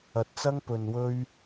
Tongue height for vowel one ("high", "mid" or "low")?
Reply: low